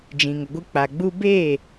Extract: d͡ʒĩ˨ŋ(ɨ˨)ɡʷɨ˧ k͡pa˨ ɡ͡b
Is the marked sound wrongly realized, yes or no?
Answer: yes